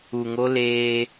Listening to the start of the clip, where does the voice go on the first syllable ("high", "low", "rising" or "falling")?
low